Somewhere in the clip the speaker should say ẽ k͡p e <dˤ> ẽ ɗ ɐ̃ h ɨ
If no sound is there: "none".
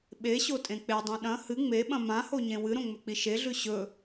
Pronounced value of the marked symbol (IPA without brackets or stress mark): dˤ